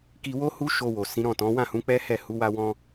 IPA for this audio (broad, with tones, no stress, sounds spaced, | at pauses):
k i˧ w o˦ h u˦ ʃ o˧ w o˨ s ĩ˨˦ ɾ ɔ̃˦˨ t ɔ̃˨˦ w ã˦˨ h ũ˨˦ k͡p ɛ˦ h ɛ˦˨ h u˨˦ w a˦ w ɔ̃˦